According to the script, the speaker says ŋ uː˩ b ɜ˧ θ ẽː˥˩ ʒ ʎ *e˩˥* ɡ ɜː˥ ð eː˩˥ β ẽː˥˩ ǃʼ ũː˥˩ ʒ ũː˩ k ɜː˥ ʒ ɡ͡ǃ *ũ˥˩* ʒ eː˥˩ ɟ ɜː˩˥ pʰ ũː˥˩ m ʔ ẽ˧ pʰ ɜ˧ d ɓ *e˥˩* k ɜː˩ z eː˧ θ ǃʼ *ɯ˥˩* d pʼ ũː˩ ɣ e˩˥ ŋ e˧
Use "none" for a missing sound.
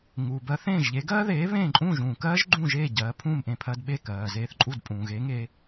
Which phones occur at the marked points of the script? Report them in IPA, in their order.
e˩˥, ũ˥˩, e˥˩, u˥˩

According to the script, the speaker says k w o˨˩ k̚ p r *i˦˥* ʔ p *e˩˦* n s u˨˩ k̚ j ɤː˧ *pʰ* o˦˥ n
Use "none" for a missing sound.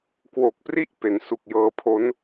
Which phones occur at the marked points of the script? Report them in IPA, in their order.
i˥˩, e˩˦, pʰ

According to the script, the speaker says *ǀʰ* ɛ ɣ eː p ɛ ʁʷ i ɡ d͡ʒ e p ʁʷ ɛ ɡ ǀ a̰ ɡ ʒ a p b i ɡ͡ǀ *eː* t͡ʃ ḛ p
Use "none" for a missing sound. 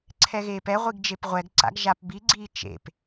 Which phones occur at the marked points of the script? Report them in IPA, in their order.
ǀʰ, iː

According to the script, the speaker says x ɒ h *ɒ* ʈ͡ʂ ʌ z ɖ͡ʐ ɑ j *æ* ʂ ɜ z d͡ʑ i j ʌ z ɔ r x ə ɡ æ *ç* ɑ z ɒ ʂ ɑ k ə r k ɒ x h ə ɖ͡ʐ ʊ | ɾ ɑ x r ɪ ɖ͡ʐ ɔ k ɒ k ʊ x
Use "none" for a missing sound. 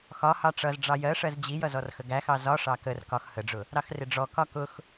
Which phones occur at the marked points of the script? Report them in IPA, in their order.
ɑ, ɜ, x

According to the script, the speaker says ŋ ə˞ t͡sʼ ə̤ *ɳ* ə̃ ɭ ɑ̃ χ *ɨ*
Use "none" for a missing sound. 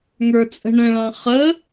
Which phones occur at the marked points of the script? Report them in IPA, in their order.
ɳ, ə

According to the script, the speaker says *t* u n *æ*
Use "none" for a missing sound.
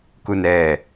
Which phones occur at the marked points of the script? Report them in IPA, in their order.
k, ɛ

